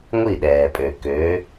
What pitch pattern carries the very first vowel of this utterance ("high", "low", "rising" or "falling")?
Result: falling